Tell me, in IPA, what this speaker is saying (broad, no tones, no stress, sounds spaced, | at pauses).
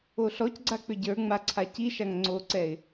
o ɬ ɔ c ɡ͡ǀ a k͡p ʏ ɟ ə˞ ŋ͡m a ǀʰ a c i ʃ a ŋ ŋ͡ǀ o ǀ ɛ ɪ̯